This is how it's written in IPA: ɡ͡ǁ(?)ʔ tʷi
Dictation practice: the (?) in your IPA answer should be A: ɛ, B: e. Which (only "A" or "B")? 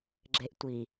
B